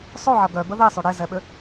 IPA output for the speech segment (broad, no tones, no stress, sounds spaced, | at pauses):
sˤ o ʕ ɐ ɡ œ b ə ð e sˤ ø ɽ e z ɛ ɓ ʏ